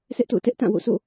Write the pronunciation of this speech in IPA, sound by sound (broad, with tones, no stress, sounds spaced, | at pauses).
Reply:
sʰ ɛ˦ ʔ t o̰˦˨ ʊ̯ t ɛ˦ ʔ t ã˦˨ w o̰˦˨ sʰ o̰˦˨